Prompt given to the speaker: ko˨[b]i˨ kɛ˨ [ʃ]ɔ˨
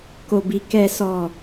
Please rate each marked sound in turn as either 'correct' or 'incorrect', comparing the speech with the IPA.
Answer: correct, incorrect

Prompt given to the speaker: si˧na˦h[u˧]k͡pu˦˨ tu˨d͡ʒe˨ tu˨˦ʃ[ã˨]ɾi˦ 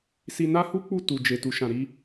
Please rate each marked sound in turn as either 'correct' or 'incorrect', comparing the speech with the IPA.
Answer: incorrect, incorrect

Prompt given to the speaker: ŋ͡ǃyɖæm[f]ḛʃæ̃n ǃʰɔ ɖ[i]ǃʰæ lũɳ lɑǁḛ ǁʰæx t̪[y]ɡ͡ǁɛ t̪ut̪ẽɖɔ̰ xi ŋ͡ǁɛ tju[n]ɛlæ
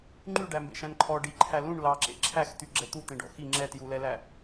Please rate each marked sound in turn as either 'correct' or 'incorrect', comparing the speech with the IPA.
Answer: incorrect, correct, correct, incorrect

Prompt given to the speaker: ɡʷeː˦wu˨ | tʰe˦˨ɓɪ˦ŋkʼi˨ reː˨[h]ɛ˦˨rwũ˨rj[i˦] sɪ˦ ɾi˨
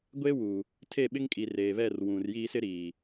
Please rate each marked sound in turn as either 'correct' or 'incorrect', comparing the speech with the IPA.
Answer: incorrect, incorrect

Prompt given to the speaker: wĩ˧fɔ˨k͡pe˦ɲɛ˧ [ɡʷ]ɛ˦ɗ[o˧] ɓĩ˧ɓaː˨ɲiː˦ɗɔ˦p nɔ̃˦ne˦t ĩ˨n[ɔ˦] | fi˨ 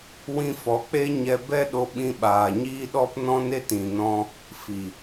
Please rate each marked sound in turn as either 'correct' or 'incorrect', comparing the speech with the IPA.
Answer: incorrect, correct, incorrect

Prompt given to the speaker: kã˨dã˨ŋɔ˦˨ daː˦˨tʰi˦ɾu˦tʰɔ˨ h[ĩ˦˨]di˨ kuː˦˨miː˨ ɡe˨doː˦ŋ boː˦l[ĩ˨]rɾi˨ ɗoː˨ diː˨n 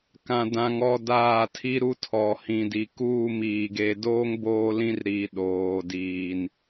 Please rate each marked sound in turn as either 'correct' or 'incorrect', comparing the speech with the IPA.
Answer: incorrect, incorrect

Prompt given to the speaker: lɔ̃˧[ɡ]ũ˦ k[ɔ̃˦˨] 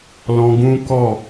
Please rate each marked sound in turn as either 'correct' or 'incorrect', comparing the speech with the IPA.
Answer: correct, incorrect

